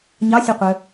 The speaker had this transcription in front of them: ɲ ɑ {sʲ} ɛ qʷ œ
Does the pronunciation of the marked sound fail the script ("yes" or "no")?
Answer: no